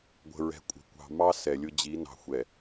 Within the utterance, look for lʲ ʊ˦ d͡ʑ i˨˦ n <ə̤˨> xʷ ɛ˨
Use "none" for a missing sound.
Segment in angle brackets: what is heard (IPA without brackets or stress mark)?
ɑ̤˨